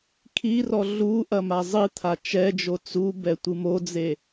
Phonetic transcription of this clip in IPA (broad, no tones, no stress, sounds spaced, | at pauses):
kʰ i r ɔ ɮ u ʔ ɐ m a zˤ ɨ t̪ʰ a t͡ʃ ɛ d͡ʒ o t͡s u b ɛ tʷ ɨ m o d͡z e